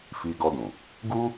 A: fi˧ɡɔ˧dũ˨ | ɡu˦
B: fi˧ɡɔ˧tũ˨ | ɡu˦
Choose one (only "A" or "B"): A